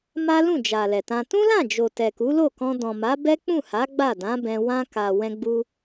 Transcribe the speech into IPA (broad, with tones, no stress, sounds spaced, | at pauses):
m a˦ l ũ˦˨ d͡ʒ a˨ l ɛ˨ t ã˧ t ũ˦ l ã˦˨ d͡ʒ o˨ t ɛ˨ k u˨˦ l o˦˨ k ɔ̃˧ d ɔ̃˨ m a˨˦ b ɛ˦ k͡p ũ˦˨ h a˨˦ ɡ͡b a˦˨ d ã˨˦ b ɛ̃˧ w ã˧ k a˨ w ɛ̃˧ ɡ͡b u˧